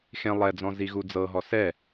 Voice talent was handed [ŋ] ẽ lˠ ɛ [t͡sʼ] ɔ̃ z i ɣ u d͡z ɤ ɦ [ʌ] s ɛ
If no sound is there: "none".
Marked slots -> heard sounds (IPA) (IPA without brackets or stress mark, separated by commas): x, d͡z, ɔ